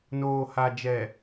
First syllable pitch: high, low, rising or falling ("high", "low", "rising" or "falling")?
low